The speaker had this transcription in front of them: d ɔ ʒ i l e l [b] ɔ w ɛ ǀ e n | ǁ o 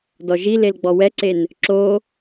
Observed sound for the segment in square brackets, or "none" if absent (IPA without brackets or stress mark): ɡ͡b